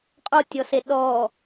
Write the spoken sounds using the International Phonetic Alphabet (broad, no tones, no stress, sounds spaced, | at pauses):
qʼ o tʲ ɔ s e ɗ ɔ